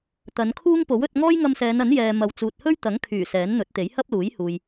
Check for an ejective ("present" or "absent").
absent